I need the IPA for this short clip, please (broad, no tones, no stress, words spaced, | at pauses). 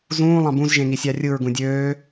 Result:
zũː lˠɑ̃bũz ʒẽŋisʲɑrʲɯɹ ɡũdʲøː